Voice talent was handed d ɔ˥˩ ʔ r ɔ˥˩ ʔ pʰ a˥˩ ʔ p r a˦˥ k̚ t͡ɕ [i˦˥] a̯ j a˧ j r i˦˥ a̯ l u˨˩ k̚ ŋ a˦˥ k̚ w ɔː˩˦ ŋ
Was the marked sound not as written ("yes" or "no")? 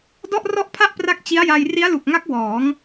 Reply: no